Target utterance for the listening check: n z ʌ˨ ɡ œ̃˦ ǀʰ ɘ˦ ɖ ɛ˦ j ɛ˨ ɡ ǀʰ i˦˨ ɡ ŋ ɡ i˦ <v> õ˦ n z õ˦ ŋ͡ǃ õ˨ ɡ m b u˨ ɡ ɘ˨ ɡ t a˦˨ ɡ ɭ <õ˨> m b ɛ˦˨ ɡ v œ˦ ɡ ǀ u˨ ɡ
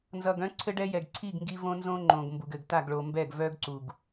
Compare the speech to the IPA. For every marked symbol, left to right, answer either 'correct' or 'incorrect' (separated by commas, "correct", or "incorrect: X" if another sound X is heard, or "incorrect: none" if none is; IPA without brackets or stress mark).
correct, incorrect: o˨